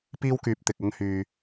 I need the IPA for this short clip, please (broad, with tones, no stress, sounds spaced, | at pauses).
p iː˥ w k yː˨˥ p̚ t̪ ɪ˨ k̚ ɐ˥ ŋ h yː˧